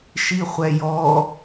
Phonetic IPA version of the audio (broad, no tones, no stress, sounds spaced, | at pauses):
ʃ i χʷ ɛ j ɔ